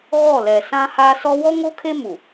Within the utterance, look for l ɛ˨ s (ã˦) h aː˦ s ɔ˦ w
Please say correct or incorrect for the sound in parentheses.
correct